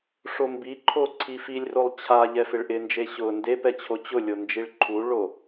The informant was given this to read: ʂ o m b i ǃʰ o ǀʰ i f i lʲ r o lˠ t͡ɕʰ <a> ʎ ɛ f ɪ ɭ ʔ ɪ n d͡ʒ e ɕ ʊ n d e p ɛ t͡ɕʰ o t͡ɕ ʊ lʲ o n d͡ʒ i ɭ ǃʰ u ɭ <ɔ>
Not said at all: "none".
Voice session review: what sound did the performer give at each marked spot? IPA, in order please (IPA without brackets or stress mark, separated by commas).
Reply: a, o